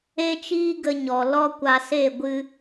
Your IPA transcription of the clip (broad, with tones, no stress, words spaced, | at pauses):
e˦t͡ʃiː˦ ɡə˧ɲɔ˨ lɔ˦ kʷa˧se˦˨ ɡʷɨ˧